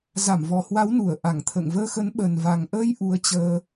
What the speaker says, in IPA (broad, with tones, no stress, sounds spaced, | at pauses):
z a˧˩ m v ɔ˨˩ h w a˨˦ w n u˧˩ ə̯ ʔ a˧˩ ŋ t̪ʰ ə̰ː˧˨ ŋ v əː˧ x ə˨˦ n ɓ ə˨˩ n v a˨˩ ŋ ʔ əː˧ j ʔ u˨˦ ə̯ t͡ɕ əː˧